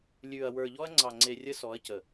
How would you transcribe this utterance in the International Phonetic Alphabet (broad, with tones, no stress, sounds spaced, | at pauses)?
lʲ ʉ˨ ɐ̯ w ə˞˨ ʎ ɔ˦ ɐ̯ ŋ͡ǀ ɑ˨ ŋ͡ǀ e˨ rʲ ə˦ s ɔ˨˦ ɐ̯ c ə˨